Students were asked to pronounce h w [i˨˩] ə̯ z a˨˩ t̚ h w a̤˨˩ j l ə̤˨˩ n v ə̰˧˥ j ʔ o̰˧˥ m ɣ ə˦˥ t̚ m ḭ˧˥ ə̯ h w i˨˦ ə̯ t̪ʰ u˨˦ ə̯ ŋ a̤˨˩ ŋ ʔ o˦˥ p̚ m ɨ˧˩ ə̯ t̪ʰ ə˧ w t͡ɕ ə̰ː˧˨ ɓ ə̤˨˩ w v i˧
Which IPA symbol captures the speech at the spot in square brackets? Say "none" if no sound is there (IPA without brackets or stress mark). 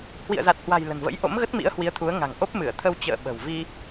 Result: ḭ˧˨